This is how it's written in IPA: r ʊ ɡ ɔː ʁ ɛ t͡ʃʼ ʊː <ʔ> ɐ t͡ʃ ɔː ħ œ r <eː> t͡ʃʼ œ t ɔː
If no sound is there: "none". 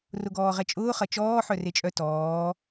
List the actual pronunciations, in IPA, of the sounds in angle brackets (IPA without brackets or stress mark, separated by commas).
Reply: χ, e